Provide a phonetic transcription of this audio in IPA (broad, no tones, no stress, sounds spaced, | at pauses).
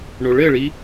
ɳ o ɭ ɘ ɭ i